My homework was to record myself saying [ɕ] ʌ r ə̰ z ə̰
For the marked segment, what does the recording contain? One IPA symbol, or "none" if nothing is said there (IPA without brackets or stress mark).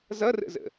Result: z